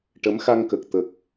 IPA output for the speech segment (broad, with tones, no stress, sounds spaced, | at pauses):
ʈ ə˧˥ m x a˧ ŋ k ə˨˩ k̚ t̪ ə˨˩ k̚